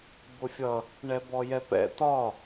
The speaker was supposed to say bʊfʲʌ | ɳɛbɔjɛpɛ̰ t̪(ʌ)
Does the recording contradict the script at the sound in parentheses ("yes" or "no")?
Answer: yes